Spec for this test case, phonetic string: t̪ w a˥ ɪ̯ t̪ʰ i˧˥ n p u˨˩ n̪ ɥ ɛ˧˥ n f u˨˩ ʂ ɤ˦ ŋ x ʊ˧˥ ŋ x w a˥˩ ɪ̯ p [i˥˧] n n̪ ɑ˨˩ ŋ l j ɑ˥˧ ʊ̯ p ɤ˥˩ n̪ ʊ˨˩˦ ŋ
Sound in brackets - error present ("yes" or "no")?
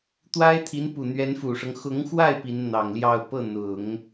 yes